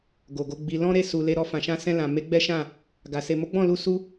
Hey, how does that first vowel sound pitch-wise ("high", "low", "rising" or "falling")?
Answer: low